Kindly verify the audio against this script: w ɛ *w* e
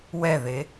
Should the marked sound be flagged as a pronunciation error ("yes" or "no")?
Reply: yes